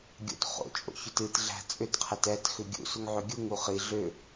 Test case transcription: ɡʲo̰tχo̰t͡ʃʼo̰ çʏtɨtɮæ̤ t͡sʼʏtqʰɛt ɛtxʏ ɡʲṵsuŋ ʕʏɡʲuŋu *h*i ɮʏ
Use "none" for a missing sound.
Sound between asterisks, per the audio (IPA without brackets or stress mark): χ